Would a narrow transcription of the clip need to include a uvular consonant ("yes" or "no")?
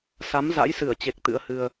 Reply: no